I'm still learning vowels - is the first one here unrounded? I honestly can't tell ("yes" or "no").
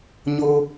no